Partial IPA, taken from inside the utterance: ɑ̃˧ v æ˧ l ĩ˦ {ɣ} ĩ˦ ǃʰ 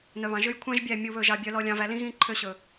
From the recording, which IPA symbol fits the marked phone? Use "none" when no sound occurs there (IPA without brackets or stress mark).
ɣ